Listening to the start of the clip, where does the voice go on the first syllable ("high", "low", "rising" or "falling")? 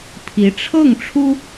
rising